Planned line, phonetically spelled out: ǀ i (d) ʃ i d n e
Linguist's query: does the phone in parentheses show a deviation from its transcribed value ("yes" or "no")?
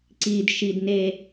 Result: no